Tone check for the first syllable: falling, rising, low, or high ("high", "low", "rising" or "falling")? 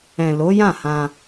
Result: low